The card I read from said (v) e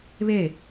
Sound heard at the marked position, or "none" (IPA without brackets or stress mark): β